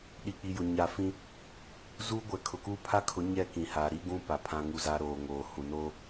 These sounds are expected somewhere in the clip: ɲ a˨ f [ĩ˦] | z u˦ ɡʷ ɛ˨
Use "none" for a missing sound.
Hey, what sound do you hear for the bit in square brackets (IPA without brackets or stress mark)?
ĩ˦